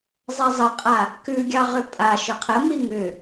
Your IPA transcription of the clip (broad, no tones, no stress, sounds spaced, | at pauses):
zˤ ɛ zˤ ə qʼ a | k ʉ ɡʲ ɑ ʁ ʏ pʼ a ʃ ʏ qʰ ə m i ŋ ʏ